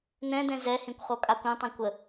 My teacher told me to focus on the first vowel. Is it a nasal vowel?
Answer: yes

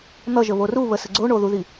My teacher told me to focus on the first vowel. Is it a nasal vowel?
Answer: no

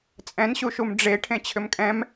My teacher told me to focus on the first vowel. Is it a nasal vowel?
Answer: yes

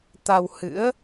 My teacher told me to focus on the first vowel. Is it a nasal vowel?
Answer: no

